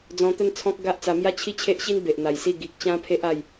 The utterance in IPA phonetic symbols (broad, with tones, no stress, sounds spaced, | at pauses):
d͡z ɔ̃˧ t̪ ə˥˧ n t͡sʰ ɔ̃˦ k̚ ɡ a˦ ʔ t͡s a˧ m j a˥˧ t͡ɕʰ i˦ t͡ɕʰ e˦ ʔ ɕ i˦ n b e˨ ʔ n̪ a˨˩ j s i˥˧ ɡ i˨ k̚ t͡ɕ ã˦ pʰ e˦ ʔ a˥˧ j